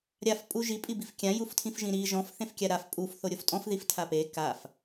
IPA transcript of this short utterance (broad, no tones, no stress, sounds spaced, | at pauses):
ɾʲ a f pʼ u ʒ i pʼ i b i f kʲ ã j u f tʰ ĩ f ʒ ĩ ɾ i ʒ ɔ̃ f θ ẽ f kʲ a ɾ a f pʼ u f θ o ɾʲ o f tʼ ɔ̃ f ð i f tʰ a p e k a f